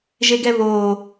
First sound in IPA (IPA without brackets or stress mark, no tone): ʒ